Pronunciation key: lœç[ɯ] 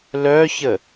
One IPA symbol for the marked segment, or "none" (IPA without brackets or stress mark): ə